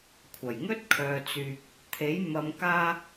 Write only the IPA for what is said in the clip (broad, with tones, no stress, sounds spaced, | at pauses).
kʷʰ ɐ˨˩ j ŋ ɵ˥ t̚ kʰ œː˨ t͡s yː˨ k̚ | t̪ʰ e˨˥ j m ɐ˧ m k aː˥